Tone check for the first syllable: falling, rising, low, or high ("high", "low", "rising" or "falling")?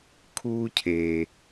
high